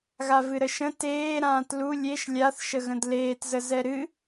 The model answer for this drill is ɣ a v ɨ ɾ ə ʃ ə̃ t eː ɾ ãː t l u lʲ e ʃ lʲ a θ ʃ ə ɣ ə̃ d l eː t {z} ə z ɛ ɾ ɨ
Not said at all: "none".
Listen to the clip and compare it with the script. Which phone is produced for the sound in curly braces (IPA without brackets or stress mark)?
z